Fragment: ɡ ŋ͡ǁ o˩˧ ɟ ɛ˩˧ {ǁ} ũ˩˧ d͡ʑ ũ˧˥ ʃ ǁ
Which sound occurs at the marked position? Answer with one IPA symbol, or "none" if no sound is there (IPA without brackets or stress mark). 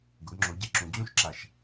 ǁ